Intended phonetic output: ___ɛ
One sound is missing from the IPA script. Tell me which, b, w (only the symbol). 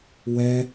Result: w